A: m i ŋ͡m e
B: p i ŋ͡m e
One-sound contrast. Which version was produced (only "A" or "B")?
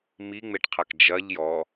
A